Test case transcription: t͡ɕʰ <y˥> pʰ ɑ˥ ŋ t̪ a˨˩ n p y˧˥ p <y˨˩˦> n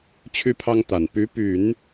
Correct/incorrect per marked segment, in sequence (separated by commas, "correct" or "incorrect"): correct, correct